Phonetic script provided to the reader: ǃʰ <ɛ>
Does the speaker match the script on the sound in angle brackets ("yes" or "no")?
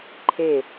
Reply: no